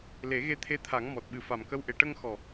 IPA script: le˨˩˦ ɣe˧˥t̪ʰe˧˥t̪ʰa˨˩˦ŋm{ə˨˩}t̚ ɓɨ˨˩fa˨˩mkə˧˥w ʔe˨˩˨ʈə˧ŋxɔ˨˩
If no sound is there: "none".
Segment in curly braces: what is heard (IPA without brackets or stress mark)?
ɔ˨˩